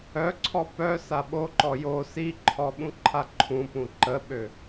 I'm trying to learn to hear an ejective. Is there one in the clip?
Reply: no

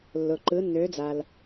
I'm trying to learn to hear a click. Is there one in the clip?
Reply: yes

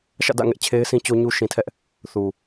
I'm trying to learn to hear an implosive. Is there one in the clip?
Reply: no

